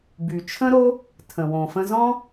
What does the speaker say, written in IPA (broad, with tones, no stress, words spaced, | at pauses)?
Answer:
by˨ t͡ʃʰə̃˦ɾo˦ | tʰə̃˨wõ˨fə̃˧zɔ̃˦